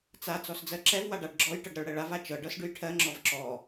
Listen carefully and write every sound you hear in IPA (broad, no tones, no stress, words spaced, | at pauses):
t͡sa t͡sɔsd͡zɜǁɛv waɖaɖɡ͡ǁɔj ʈɤɖɾɤɭɽɛɭav at͡ʃɤ ɖɤsɖʉjʈʰɜ ŋ͡ǁɔvǁɔ